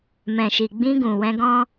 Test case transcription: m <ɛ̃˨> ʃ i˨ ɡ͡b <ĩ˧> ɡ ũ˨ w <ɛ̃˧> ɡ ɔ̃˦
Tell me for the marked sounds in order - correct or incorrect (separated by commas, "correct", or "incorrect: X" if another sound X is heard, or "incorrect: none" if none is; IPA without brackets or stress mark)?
correct, correct, correct